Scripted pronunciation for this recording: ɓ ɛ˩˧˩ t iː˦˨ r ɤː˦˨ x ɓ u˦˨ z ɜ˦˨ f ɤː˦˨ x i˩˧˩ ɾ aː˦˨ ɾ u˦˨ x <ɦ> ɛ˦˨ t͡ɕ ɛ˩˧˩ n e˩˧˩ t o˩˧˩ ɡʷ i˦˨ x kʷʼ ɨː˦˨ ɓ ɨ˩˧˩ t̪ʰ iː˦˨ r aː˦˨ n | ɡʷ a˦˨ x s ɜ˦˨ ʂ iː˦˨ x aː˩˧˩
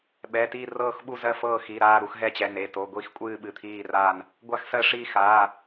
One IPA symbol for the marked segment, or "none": ɦ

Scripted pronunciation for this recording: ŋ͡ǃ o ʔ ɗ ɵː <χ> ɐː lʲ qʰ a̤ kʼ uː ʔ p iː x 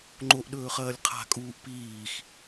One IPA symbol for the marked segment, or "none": χ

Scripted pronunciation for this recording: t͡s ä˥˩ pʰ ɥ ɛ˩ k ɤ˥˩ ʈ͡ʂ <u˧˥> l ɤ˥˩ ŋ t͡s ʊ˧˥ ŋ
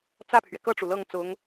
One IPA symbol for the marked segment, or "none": u˩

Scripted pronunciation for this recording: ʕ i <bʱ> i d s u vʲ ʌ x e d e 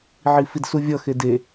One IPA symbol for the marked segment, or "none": f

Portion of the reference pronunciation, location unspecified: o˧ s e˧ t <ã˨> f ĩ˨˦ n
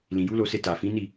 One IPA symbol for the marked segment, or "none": a˨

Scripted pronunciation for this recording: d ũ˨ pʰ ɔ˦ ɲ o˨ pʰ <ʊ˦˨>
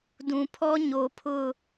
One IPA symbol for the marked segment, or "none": ʊ˦˨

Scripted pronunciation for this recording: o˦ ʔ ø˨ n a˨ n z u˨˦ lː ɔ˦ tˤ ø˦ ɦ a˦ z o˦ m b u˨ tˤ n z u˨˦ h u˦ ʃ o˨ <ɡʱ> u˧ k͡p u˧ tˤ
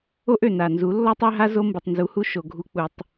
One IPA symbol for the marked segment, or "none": ɡʱ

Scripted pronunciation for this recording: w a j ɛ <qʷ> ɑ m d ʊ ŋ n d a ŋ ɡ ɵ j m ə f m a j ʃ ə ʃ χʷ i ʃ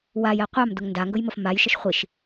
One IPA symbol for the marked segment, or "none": qʷ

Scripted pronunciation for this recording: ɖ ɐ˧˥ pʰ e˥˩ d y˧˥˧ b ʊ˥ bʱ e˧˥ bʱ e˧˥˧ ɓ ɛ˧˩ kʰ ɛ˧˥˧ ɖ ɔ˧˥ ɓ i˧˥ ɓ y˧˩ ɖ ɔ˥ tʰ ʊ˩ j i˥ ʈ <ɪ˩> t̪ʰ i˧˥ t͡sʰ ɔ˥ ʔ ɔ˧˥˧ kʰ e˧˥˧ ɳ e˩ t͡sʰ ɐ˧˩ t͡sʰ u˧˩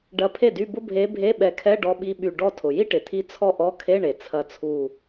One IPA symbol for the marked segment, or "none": ɪ˩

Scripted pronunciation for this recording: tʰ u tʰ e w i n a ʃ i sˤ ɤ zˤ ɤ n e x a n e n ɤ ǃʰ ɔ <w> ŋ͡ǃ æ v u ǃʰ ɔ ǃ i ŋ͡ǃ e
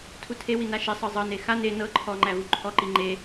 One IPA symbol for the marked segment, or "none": none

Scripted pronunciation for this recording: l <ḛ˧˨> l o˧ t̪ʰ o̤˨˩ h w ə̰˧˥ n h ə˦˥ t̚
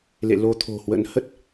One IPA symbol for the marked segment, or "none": ḛ˧˨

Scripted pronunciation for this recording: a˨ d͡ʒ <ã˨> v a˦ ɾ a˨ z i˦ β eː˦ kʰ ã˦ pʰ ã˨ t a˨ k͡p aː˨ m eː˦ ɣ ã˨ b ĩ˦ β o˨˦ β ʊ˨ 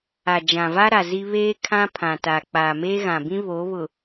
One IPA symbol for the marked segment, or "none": ã˨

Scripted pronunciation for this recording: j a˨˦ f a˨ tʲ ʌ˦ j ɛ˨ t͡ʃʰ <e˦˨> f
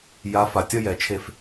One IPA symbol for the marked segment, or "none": e˦˨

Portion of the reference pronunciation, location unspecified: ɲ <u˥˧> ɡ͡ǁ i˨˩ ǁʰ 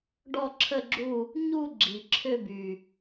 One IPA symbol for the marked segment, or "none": u˥˧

